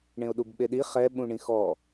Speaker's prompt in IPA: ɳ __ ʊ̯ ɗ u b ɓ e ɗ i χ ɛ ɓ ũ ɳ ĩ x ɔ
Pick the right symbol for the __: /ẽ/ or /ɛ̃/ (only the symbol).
ẽ